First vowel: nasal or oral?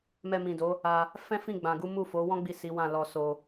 oral